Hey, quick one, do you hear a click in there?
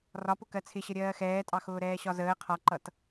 yes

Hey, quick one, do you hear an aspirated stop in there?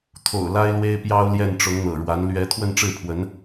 yes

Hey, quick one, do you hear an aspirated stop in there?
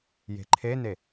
yes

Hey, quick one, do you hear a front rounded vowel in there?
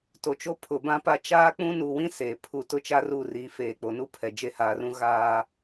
no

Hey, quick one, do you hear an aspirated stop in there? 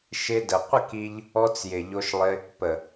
no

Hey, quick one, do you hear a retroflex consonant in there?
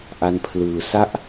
no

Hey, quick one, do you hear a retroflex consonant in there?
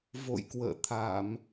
no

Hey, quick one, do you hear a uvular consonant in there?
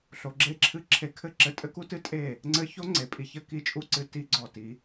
no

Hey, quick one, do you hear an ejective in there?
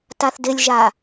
no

